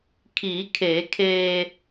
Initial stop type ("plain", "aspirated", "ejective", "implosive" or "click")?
aspirated